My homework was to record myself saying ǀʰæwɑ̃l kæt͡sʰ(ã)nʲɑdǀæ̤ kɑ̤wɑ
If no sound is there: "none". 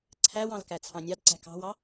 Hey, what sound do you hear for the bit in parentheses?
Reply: ɑ̃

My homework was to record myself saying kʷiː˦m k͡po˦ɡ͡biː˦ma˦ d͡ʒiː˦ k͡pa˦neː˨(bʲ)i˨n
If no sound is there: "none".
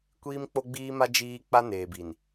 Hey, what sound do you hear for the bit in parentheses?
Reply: b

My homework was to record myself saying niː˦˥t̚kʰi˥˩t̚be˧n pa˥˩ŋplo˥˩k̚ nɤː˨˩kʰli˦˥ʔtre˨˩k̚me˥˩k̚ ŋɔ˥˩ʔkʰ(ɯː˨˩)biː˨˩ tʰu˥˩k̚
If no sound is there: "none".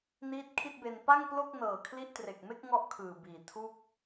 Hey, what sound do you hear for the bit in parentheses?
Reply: ɯː˨˩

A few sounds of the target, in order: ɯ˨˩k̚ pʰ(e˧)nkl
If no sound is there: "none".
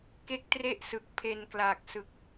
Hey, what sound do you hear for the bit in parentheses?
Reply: e˧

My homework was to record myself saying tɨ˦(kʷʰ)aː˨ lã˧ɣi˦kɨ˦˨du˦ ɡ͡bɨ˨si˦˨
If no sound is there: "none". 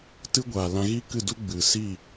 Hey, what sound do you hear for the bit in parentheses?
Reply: ɡʷ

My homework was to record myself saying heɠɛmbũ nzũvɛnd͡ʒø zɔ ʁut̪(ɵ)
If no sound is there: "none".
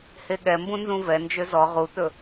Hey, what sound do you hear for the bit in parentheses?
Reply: ɵ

